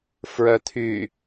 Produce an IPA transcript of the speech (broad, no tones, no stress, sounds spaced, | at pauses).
f ɹ œ t̪ʰ y